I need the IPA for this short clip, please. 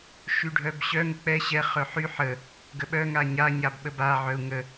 ʃyɖʱœbɕœ ŋək͡pɛ ɕɛ χœħy ħə | ɡəɓœ ŋaɲa ɲabɓəba ʕœu̯ŋə

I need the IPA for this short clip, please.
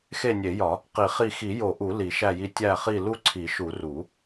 xe˦˨nʲe˨˩˦jɒ˨˩˦ | qi˨˩˦χi˦˨ xi˨˩˦jo˨˩˦ʔu˨˩˦ li˨˩˦ʃæ˦˨ji˦˨ tʲæ˦˨χi˦˨ lu˦˨ǀʰi˨˩˦ʃu˨˩˦ ru˨˩˦

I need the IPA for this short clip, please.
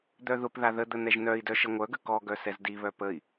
d̪œðʊpða ðəd̪ə n̪ɛʒnœi̯dœ ʃəŋʷœɡə kɔɡœ sɛzdiβœ pəi̯

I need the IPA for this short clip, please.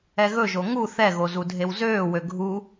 ɛɣɵʒo ŋu θɛɣo zudʱewzøːwø ɡʱu

